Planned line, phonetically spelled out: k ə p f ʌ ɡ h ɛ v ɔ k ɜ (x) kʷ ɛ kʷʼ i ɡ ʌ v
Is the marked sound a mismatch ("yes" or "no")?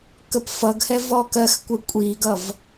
no